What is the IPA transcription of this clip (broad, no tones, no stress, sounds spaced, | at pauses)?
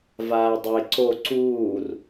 v aː dˤ e ǀ o ǀ uː r